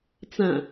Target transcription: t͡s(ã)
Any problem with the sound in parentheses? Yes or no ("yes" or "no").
no